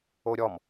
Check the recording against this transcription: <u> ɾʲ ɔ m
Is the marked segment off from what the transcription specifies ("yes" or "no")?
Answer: yes